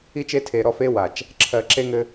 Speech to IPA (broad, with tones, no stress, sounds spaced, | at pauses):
i˦ t͡ʃ e˦ tʰ e˨ ɾ ɔ˦˨ f e˦ w a˨ t͡ʃ | ǁʰ ɜ˨ ǁ e˦ ŋ ɘ˦